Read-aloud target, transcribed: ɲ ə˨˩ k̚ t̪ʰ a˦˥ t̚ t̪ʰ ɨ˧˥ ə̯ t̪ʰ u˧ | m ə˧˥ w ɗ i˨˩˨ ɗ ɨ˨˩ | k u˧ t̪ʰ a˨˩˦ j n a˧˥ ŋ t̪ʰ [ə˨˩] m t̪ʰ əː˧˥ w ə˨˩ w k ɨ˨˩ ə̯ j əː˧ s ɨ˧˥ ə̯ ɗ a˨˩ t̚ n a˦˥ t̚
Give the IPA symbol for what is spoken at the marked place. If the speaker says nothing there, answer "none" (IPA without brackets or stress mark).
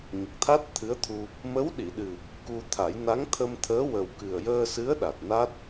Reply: ə˧